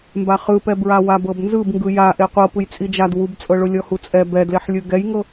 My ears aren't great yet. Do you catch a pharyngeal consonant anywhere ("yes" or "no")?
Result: yes